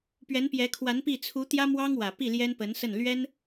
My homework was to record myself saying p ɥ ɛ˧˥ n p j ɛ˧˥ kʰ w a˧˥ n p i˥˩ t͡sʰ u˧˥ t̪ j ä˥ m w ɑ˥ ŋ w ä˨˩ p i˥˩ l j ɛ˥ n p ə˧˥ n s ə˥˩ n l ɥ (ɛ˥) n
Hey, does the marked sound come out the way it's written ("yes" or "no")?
yes